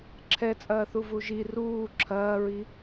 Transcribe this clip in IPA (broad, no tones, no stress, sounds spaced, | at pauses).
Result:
ǁʰ ɛ t͡sʼ ɐː θ u v u ʒ i r uː ǁʰ ɐː ɹ i